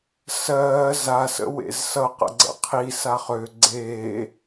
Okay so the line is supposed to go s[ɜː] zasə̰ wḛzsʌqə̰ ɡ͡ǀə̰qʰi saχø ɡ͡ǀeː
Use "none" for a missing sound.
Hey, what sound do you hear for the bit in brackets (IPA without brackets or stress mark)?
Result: ɜː